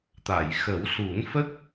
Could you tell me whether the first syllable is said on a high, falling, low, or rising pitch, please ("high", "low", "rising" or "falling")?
low